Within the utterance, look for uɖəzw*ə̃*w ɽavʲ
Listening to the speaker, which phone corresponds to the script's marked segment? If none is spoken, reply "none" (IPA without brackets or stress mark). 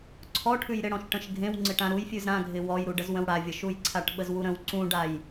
ə̃